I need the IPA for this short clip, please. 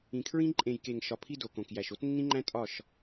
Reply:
ĩ˨ kʰ ɹ ĩ˦ ǃʼ ẽ˨ j k e˨ ŋ ʃ ɒ˨ pʰ i˧ d o˨ k õ˨ k j æ˨ ʃ o˦ t nː ĩ˦ ŋ͡ǃ æ̃˦ tʼ ɒ˦˨ ʃ

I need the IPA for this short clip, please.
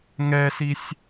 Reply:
ŋ ɛ s i sʲ

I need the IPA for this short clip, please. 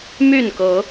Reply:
m y˥˨ n k ɤ˨˦

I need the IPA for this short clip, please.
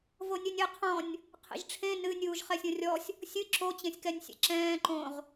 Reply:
v o nʲ ɘ nʲ ɘ qʰ ɔ̃ nʲ | qʰ ḛ ʒ ʈ͡ʂʰ ẽ n ɨ nʲ uː ʒ χ ɛ sʲ õ rʲ ɔ sʲ | sʲ ɨ ǁ o t͡ɕ ẽ sʲ k ɛ nʲ sʲ ɛ̰ ǁ ɛ̃ː ǃ õ ʁ

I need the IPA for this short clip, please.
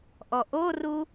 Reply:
ʔ ɔ ʔ o r u

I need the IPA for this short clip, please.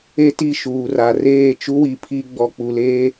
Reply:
e˦ t i˦˨ ʃ uː˨ r a˨ r eː˦˨ t͡ʃ u˦ w i˨ pʰ i˦ ɡ͡b ɔ˨ k͡p u˨ l eː˦

